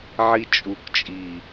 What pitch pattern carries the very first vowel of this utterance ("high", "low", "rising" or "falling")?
high